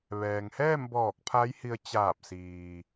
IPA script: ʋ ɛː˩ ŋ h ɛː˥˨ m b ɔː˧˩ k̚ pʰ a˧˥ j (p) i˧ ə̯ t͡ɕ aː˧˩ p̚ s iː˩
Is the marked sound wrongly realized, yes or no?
yes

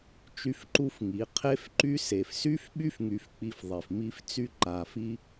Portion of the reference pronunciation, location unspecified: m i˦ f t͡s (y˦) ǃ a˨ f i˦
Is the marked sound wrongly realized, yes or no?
no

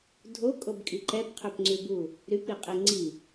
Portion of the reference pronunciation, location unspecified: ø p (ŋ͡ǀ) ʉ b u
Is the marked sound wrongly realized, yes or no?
no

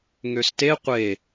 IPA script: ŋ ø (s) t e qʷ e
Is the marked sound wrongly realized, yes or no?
no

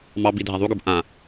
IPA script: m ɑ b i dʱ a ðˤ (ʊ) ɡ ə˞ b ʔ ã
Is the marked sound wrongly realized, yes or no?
yes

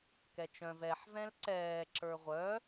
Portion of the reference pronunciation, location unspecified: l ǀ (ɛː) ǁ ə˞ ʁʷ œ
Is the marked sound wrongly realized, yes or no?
no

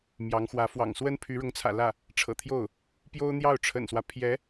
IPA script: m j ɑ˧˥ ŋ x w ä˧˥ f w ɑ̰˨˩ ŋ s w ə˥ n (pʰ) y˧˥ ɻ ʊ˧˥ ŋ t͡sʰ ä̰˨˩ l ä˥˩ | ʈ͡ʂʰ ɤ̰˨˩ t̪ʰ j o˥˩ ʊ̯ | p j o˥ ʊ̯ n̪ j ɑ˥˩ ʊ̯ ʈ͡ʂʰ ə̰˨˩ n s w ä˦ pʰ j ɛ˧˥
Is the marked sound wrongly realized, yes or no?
no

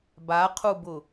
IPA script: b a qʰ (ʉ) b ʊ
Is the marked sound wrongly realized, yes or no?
yes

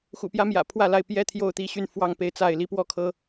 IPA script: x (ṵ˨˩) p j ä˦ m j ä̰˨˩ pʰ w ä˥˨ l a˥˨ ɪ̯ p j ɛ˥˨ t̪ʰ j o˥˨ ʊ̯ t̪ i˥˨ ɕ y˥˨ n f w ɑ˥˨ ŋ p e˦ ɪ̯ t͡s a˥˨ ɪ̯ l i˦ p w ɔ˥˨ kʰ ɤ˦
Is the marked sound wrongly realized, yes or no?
no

